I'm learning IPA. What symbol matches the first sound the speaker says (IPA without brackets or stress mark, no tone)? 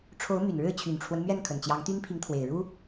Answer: ʈ͡ʂʰ